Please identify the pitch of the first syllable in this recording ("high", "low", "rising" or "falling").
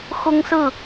high